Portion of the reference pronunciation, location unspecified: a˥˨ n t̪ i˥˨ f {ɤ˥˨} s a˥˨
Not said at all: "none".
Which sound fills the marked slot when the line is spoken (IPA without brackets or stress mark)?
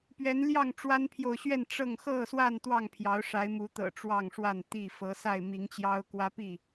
ɤ˨˦